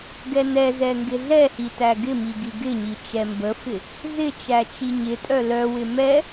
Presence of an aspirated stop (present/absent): absent